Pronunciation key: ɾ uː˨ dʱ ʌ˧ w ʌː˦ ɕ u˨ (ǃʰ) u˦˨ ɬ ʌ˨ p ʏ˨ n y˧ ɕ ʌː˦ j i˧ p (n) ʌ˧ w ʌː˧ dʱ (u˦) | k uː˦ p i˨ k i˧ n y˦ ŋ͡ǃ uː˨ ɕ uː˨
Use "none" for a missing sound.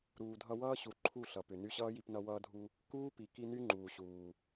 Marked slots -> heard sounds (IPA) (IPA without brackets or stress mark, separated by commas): ǃʰ, n, u˧